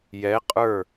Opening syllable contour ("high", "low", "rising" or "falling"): rising